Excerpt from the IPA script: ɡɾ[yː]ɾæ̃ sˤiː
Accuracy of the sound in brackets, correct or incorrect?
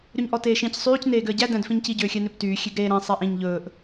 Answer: incorrect: eː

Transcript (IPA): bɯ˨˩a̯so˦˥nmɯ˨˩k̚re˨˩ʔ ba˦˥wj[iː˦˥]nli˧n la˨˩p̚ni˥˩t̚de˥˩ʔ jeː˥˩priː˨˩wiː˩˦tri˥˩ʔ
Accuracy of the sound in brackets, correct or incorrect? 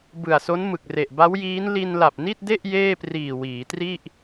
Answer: correct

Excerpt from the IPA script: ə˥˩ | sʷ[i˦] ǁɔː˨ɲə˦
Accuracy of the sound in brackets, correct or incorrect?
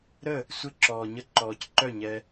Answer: incorrect: ɪ˦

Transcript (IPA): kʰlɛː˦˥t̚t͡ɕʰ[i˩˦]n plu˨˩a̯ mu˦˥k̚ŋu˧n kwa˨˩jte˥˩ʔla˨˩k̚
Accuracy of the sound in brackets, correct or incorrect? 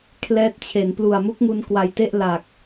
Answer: incorrect: e˩˦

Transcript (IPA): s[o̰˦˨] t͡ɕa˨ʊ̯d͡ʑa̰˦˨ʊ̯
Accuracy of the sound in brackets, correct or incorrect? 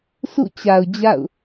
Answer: incorrect: ṵ˦˨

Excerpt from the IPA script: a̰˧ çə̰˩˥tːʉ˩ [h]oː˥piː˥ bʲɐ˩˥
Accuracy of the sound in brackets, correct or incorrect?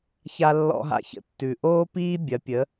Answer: incorrect: ʔ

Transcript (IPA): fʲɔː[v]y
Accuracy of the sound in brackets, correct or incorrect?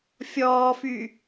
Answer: incorrect: f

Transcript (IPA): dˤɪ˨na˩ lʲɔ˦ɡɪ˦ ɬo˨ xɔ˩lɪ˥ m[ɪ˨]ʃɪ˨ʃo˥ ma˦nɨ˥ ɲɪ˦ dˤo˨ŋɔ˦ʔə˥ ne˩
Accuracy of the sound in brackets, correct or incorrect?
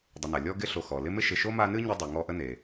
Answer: incorrect: ɪ˥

